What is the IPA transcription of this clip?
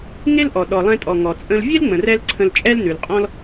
ŋ e˥ l ʔ ɔ˩ ɗ ɔ˩ lˠ ɛ̃˧ tʼ ɔ˩ ŋ ɔ˩ t͡sʼ ə̃˧ l vʲ e˥ l ŋ͡m ə̃˩ r ɛ˧ l ǀʰ ə̃˧ l t͡ʃʼ ɛ˥ l n ʉ˩ l qʼ ɔ̃˥ l

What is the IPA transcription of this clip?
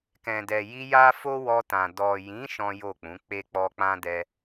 k ɛ̃˨ d ɛ˨ j i˧ j a˦ f o˦ w ɔ˧ t ã˨ d ɔ˨ j ĩ˨˦ ʃ ɔ̃˦ j o˦˨ k͡p ũ˨˦ k͡p e˦ k͡p ɔ˦ k͡p ã˦ d ɛ˧

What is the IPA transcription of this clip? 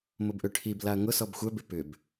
m ʊ b ʔ ø ʈʰ i b l a ɐ̯ ŋ ʊ s ɔ b xʷ œ b ɪ p ʏ b

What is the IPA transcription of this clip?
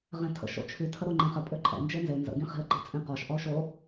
ʁ ẽ tʰ ə̰ ʃ o̰ t͡ʃʰ y tʰ ə ɾ o ŋ͡ǃ ẽ χ ə pʼ ø ǃʼ ɛ̰ n d͡ʒ e n z e n z ə̰ ɡ ĩ χ i̤ ə̯ ǃ i̤ t͡sʼ ĩ q ɔ ʃ ʔ ɔ ʊ̯ ʃ o

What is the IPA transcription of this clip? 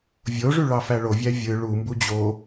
vʲ o ʐ y ɭ ɑ f æ ɭ o vʲ æ vʲ ɯ ɭ u m b u d͡ʑ o

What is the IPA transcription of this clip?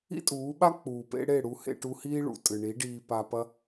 ḭ˦ tʼ uː˨˦ ɓ a˦ k͡p uː˨ p ḛ˧ ɽ e˦˨ ɽ u˧ h ḛ˧ ʈ u˧ h iː˦ ɭ ṵ˨ tʼ ɨ˨ ɳ i˨˦ ɖ iː˧ p a˧ p ɐ˦

